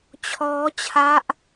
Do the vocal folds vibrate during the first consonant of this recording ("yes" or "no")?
no